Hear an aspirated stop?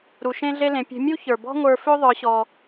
no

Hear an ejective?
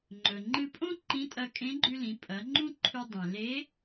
yes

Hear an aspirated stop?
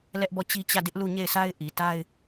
no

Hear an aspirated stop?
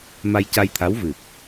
yes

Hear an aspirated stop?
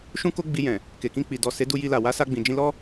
no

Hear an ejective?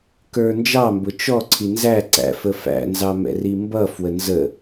no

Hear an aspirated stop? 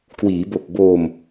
no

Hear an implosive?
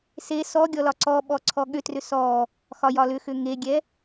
yes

